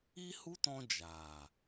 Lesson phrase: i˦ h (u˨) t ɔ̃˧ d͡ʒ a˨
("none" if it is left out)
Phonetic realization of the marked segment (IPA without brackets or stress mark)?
u˦